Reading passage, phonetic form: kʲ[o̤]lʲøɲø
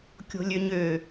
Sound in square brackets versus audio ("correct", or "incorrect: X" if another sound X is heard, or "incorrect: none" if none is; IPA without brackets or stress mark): correct